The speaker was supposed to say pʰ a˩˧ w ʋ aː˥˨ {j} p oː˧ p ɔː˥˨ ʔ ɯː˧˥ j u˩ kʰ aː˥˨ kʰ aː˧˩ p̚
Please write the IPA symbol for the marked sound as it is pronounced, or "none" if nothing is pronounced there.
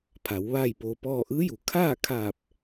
j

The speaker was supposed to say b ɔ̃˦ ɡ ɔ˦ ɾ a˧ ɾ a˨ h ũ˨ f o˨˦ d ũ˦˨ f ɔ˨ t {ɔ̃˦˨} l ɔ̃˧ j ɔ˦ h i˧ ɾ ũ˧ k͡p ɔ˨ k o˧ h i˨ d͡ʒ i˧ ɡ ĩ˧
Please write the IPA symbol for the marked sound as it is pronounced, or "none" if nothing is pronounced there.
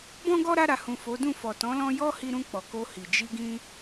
ɔ̃˨˦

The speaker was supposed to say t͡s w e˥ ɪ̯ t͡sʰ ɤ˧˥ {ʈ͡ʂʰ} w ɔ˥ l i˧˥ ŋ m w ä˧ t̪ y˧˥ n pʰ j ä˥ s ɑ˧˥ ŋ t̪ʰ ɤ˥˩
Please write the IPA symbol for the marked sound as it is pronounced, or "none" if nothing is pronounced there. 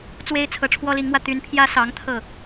ʈ͡ʂʰ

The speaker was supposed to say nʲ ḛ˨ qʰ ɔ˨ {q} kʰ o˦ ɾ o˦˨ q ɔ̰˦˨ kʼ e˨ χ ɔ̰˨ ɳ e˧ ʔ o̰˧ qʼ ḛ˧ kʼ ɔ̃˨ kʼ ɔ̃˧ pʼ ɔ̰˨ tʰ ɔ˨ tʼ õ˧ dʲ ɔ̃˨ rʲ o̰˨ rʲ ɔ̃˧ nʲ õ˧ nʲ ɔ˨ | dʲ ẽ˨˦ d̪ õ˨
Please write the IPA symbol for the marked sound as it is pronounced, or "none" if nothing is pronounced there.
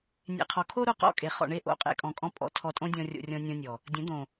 none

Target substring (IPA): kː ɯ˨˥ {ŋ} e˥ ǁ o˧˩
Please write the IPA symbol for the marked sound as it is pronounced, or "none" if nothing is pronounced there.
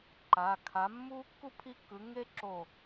ŋ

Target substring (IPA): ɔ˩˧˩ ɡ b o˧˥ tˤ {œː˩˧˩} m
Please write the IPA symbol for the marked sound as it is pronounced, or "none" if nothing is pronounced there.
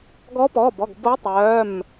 œː˩˧˩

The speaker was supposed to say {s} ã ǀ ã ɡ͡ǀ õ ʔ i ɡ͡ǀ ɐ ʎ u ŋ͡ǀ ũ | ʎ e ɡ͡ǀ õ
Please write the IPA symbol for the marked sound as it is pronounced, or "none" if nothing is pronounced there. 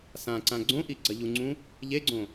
s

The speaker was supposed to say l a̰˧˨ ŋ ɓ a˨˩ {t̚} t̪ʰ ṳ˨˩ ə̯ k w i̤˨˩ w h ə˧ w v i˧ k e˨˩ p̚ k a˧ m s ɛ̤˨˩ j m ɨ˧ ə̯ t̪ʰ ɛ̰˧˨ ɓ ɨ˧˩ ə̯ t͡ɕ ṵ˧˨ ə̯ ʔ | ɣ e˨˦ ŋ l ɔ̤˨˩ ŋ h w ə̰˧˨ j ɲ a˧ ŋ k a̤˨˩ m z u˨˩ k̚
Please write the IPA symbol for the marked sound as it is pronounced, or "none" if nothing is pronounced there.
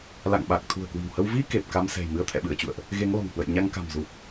k̚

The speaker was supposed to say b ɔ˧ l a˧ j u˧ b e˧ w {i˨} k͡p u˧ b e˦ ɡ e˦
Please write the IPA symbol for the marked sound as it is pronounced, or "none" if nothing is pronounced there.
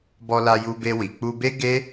i˨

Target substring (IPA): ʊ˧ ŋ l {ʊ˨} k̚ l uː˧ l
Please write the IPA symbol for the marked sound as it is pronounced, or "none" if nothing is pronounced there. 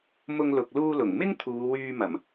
ʊ˨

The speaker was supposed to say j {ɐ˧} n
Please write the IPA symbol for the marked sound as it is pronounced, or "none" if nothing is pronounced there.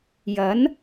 ɐ˨˥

